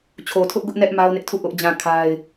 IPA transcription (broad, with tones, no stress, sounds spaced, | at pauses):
t͡ɕʰ o˨ tʰ ʊ˦ ʔ ɡ ʊ˦ ʔ n ɛ˦ ʔ m a˦ ʊ̯ n ɪ˦ ʔ tʰ u˦˨ ʔ ʊ˦ ʔ d͡ʑ ã˦˨ kʰ a˦ ɪ̯